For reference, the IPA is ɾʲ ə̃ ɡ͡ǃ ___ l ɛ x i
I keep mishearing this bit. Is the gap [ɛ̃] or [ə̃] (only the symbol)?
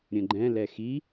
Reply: ɛ̃